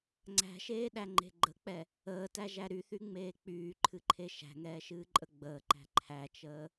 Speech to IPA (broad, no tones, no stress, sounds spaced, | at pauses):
ŋ͡ǀ æ̤ ʃ eː ɗ æ ŋ͡ǃ e̤ ɡ͡ǃ ə k͡p ɛ | əː t æ ʒ æ ɾ y θ y ŋ͡m eː k͡p yː ǃʰ ɨ ǃʰ e ʃ æ̤ ŋ ɛː ʃ ɨː ǃʼ ə ɡ͡b əː ǃ æ̤ ǃʰ æ t͡ʃ əː